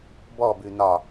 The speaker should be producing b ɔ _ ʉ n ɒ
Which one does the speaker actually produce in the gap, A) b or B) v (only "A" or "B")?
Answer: A